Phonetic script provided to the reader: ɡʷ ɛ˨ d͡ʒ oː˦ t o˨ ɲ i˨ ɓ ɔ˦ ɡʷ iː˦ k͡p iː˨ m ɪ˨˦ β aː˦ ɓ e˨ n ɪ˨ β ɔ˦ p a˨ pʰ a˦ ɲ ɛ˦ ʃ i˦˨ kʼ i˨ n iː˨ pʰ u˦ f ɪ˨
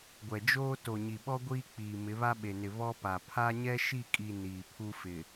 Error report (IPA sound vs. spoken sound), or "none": aː˦ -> a˦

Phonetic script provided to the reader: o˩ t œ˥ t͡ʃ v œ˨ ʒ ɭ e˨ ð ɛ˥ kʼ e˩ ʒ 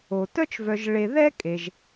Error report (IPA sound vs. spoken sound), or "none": none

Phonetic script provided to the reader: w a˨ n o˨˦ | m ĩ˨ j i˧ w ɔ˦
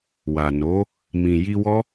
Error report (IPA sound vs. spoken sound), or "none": none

